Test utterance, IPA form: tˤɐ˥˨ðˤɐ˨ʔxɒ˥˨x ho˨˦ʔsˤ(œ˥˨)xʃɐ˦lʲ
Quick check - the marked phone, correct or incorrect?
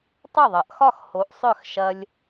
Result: correct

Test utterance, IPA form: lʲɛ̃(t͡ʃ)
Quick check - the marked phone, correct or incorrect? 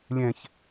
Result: incorrect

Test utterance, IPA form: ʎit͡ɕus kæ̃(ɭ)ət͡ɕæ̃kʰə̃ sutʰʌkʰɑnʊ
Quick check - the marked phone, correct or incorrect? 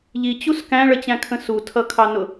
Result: correct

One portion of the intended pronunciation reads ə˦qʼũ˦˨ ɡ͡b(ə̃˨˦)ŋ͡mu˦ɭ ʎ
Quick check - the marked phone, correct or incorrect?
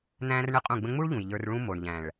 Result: incorrect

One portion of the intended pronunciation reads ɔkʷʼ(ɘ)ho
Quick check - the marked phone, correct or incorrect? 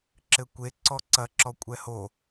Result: incorrect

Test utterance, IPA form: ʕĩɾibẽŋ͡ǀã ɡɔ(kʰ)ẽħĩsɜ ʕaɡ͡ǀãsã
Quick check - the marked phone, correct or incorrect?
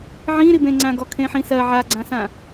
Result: correct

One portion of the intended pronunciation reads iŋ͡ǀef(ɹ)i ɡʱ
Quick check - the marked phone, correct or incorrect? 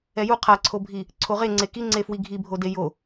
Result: incorrect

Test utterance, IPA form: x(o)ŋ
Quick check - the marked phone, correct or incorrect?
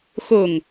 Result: correct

